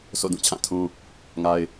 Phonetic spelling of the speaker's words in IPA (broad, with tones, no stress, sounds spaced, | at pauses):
s o̰˦˨ d ũ˦˨ t͡ɕʰ ã˦˨ tʰ ũ˦ | ŋ a˦ ɪ̯